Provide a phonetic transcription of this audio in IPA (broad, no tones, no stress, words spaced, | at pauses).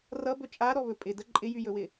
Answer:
rʌbɵ t͡ʃʼaɾɔβɵ pʼɪdə ǃʼɪjyjɵwɪ